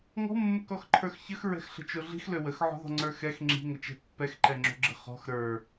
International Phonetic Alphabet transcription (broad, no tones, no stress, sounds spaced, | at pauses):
ŋ ɔ̤ mː ə k ɔ x ǃʰ ə˞ x ç ə x ɹ ɛ̤ x ɬ ə̤ t͡ʃ o ɮ i̤ x l ø w ə x ʕ ɔ̤ ð ɔ̤ ŋ͡ǀ ə˞ x ɛ x ŋ͡ǁ i̤ ŋ ə t͡ʃ ɛ̤ pː ɛ x ǃ ɛ ŋ͡ǁ o̤ ɡ͡ǁ ə̤ χ ɔ̤ x ɾ ə˞